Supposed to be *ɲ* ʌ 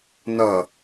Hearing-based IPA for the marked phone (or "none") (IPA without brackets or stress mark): n